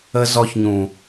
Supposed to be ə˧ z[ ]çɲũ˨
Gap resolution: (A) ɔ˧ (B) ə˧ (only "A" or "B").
A